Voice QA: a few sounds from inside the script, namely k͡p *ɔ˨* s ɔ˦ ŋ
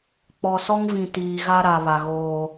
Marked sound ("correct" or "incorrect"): correct